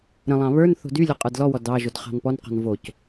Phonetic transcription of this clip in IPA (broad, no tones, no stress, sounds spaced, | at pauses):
ɾ ə̃ lˠ ɑ̃ β ə˞ n θ o̤ d y lʲ ɔ qʼ ə˞ d l ɔ w ɔ d ɑ ʒ o d χ ɑ̤ n p ɔ n q ɔ̤ n v o c